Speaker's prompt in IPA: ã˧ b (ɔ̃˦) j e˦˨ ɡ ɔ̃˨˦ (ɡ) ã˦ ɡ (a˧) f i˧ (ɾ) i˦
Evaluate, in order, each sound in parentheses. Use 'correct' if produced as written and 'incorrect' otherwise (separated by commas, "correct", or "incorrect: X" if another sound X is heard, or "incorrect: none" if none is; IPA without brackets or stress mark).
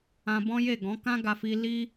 correct, incorrect: k, correct, incorrect: l